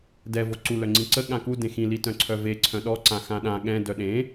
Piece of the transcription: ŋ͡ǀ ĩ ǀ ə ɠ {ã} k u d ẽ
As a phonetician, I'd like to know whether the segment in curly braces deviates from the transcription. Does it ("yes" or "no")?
no